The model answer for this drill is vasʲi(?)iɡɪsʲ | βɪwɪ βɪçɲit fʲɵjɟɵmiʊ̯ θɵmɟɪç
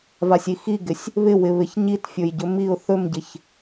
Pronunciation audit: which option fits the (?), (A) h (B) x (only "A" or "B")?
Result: B